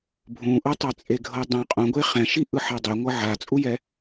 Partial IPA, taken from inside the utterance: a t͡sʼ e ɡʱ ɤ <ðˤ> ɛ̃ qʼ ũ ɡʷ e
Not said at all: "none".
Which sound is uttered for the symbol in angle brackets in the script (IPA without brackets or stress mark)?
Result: dˤ